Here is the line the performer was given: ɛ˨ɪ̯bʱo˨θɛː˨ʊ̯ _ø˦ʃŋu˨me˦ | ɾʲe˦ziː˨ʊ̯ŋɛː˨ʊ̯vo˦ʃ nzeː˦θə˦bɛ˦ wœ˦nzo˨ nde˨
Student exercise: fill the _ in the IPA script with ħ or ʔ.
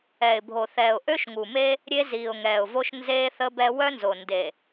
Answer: ʔ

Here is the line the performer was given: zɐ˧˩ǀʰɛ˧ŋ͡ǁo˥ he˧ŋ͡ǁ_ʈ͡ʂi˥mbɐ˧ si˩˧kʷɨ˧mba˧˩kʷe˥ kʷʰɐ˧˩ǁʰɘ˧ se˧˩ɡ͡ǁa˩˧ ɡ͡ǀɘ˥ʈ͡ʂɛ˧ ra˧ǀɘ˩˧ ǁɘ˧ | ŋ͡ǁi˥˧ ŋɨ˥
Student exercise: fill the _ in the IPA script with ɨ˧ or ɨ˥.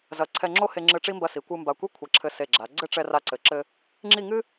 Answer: ɨ˧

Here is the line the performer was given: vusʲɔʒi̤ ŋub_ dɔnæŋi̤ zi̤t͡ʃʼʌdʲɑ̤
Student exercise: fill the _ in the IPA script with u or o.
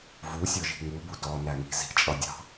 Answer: u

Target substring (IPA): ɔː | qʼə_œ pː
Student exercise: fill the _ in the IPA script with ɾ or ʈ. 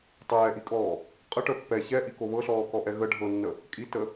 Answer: ʈ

